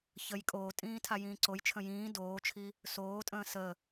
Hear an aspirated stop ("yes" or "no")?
yes